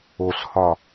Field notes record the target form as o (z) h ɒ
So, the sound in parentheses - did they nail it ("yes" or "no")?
no